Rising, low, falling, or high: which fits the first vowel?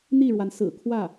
falling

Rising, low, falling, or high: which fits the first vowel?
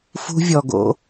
high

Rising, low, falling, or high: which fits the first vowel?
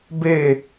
falling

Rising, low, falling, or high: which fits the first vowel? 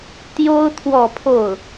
high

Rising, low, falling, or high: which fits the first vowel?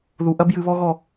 low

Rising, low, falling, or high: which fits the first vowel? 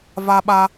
high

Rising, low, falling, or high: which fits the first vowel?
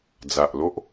low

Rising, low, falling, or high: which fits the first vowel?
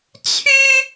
high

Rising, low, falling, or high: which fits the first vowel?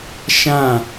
falling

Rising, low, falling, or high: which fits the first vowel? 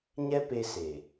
high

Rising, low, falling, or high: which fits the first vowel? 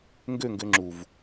falling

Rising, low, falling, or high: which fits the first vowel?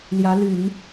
rising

